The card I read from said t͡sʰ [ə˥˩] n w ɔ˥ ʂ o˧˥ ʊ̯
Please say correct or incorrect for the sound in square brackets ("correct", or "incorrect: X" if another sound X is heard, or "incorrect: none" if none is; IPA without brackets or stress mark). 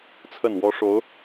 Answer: correct